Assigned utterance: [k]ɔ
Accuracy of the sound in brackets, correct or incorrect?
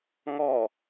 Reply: incorrect